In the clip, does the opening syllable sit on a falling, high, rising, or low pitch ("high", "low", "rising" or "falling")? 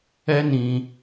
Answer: high